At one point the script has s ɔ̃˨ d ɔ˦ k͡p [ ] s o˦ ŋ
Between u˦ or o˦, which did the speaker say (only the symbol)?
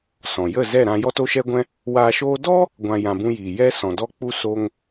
u˦